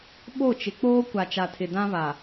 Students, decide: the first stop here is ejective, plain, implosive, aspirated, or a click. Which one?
implosive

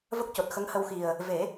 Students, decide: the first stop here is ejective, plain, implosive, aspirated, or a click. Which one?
plain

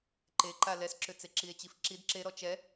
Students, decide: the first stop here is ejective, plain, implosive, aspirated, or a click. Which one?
click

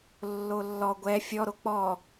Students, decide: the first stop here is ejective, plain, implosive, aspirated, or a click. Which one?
plain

